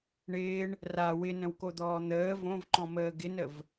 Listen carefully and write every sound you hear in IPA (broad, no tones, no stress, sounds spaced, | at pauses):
ɳ ɪː ɳ | r a w ɪ n ə̃ w k o d̪ ɔː n̪ əː v õ v ǃ ɔ̃ m əː ɡ ɪ n ə v